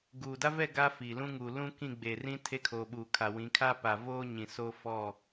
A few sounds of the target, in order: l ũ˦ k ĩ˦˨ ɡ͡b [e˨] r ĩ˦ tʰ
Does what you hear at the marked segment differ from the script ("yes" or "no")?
no